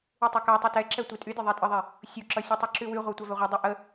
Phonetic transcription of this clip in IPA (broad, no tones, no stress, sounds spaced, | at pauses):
y tˤ ʌ k a tˤ ʌ t ɛ ǁ ɛ tʷ i tʼ y dʲ ʌ ðˤ ɛ tʼ ə ðˤ ɛ | sʲ u ǁ ʌ sʲ ə tˤ u ǁ y w y ʁʷ a tʷ a v ɛ ʁʷ e dˤ y ʔ ə